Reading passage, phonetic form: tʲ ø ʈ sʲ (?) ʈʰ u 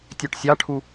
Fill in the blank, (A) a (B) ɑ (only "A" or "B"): B